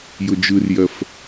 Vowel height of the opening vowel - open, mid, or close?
close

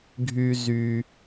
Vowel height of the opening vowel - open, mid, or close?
close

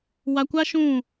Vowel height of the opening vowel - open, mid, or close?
open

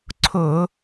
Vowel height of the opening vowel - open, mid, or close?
close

